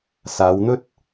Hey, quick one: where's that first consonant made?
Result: tongue tip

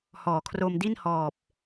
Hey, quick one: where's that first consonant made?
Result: throat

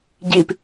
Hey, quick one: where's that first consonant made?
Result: palate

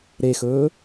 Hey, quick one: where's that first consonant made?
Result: tongue tip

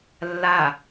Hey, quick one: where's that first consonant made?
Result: tongue tip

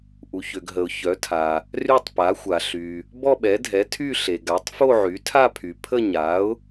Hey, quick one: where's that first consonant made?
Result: throat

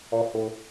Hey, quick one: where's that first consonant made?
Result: throat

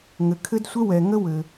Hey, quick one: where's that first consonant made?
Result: velum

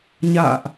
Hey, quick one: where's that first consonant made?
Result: palate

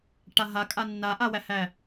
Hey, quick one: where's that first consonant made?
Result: retroflex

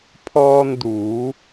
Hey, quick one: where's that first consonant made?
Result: lips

